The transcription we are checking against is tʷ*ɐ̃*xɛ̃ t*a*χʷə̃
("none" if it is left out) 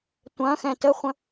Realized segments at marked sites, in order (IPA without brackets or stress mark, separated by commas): ɐ̃, ə